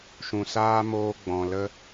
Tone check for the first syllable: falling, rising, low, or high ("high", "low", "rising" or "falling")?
low